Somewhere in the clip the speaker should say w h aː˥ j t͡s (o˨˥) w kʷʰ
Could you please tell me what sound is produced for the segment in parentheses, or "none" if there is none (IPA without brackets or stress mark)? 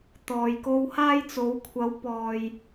o˨˥